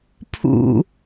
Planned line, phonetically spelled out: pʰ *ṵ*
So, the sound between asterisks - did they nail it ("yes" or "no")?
yes